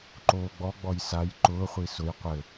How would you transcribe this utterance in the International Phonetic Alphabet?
ǃoːɡ͡bɔ ɡ͡bɔjsaj ǃʊː χʷisʊj qʷɘ

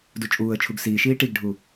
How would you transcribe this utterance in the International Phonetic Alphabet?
dut͡ʃʼuːə̯t͡ʃʰuɡ siːʃiː ʈiɡɖʱu

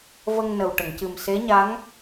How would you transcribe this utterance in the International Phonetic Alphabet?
və˧ŋnə˨˩wʈə˨˩˨ŋcɨ˨˩m se˧˥ɲa˧˥ŋ

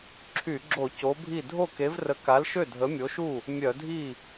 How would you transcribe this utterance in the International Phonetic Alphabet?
ǁʰy˧˩˧ɡ͡ǁo˧˩˧ co˨˥bʱi˥˩ dʱo˥˩ke˨˥vrə˨˥ ka˨˥lʃø˥˩ dʱə˨˥mʲo˨˥ʃu˥˩ | mʲœ˧˩˧dʱi˥˩

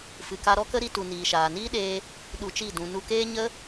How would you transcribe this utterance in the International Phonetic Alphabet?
fɨ˨ka˧ɾɔ˦kə˦ ɾi˧tu˨ niː˨ʃaː˨niː˦ɗeː˧ | ɗu˧t͡ʃi˦˨ dũ˨nu˧keː˦ɲə˦

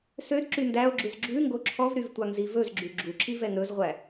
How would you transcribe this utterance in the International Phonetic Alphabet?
sødǁy ndæo̯ɡ͡ǁʉz ɡ͡ǁʉ ŋɡoǁʰɔvɾyv tʷɑŋzivɵzɡ͡ǁy ɡ͡ǁuǁi vɛŋɾɵzʁʷæ

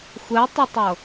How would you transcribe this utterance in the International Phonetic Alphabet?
xʷɛtˤetˤɤ

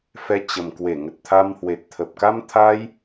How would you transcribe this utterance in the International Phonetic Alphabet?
fɛ˧t͡ɕə˨˩mkwe˧˩ŋə˨˩t̚ t̪ʰa˧mhwe˨˩t̚t̪ʰə˨˩p̚ ka˧mt̪ʰa˧j

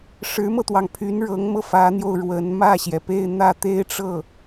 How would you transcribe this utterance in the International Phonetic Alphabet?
ʂɻ̩˧˥mɤ˧t̪wɑ˩ŋpʰy˧˥n ɻɤ˧˥ŋmɤ˧fä˧˥n̪jo˧ʊ̯ ɻwə˧˥n mä˥˩ɕjɛ˩pe˥˧ɪ̯ n̪ä˥˩t̪e˥ɪ̯ʈ͡ʂɤ˥˩

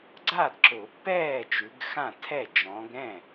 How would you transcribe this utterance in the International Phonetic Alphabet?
ɡ͡ǀa˥˩dǁʊ˨˩˦pːɛː˥˩ t͡ʃʉ˨˦ɡxã˥˩tʰɛ˥˩ d͡ʒɔ̃˨˦ɡ ɾɛ̃˥˩

